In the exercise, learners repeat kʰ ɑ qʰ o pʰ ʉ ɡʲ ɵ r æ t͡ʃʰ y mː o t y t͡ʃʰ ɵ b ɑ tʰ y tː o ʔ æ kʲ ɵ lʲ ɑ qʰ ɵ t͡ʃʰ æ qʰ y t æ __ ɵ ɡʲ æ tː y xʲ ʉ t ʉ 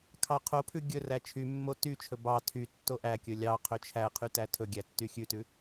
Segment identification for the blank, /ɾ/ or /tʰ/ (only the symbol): tʰ